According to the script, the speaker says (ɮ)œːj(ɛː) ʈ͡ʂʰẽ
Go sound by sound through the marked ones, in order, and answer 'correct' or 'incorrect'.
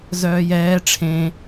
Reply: incorrect: z, correct

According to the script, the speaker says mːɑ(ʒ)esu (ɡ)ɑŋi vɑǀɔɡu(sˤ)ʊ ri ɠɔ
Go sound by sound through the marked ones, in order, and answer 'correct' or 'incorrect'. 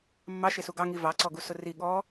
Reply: incorrect: ʃ, correct, incorrect: s

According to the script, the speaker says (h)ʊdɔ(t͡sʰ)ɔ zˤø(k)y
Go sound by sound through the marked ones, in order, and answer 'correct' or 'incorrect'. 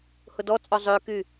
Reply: correct, incorrect: t͡sʼ, correct

